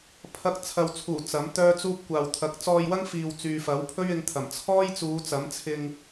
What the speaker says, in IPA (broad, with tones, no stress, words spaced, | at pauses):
pʰɐ˧k̚ t͡sʰɐ˨wt͡sʰuː˨˩ t͡sɐ˨˥mt̪œː˥t͡suː˥p̚ kʷaː˨wt̪ʰɐ˨˥k̚ t͡sɔː˧jwɐ˥ŋfiː˨w t͡syː˨fɐ˨˥wpʰɵ˥ɥɪ˨˧ŋ t̪ʰɐ˨˩m t͡sʰɔː˥jt͡suː˨˧t͡sɐ˨˥mt͡sʰɪ˧ŋ